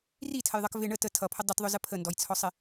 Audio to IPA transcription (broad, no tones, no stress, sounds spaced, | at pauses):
r i tʰ ə j ðˤ ʌ k v ɪ ɳ ə t ə tʰ ʌ pʰ ə dˤ ʊ t ðˤ ʊ z ə pʰ ə n d ɔ j t͡sʰ ɔ sˤ ɪ